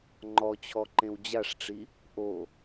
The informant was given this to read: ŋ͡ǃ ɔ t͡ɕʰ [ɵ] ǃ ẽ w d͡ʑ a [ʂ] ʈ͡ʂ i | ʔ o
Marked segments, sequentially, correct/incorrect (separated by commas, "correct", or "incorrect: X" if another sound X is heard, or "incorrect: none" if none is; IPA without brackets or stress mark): incorrect: ɔ, correct